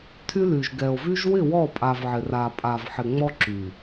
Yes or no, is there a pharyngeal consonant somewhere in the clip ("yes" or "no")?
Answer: yes